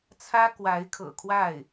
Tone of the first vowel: high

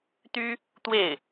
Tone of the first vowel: high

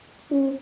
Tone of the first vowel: high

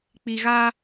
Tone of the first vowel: low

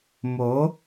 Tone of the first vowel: rising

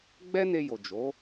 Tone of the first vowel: high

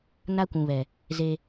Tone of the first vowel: high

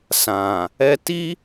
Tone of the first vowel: low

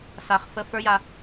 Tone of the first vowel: low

